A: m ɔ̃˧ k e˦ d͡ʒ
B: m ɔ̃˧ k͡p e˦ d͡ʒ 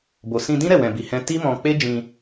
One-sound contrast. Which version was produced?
B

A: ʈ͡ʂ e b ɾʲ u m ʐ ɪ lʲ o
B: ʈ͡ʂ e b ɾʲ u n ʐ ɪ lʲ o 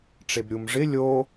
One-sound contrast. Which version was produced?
A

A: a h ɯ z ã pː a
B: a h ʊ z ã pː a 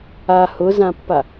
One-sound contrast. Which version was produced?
B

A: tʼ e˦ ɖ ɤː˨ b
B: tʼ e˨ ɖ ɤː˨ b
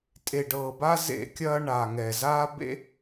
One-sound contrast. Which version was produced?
B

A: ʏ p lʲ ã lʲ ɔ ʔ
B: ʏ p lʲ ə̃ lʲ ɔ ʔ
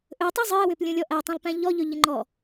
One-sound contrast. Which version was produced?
B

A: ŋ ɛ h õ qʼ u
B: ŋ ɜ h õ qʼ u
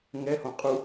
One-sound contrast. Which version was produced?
A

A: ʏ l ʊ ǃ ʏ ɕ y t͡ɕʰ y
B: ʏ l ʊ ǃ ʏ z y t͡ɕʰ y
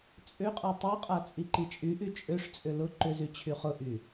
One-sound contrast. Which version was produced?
B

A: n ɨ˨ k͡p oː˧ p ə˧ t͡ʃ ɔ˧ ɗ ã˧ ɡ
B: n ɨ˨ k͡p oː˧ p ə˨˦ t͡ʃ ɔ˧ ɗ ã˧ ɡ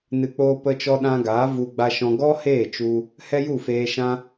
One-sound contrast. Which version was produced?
A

